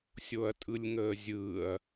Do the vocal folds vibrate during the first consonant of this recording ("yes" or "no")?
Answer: no